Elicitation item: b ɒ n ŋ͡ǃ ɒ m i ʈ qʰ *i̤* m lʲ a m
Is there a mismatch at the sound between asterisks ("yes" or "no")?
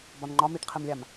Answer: yes